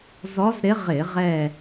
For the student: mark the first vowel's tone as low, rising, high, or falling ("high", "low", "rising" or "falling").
rising